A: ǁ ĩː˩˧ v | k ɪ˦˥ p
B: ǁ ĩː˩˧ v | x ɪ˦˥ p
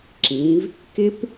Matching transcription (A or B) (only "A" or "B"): A